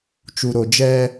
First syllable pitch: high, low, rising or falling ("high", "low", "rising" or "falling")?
low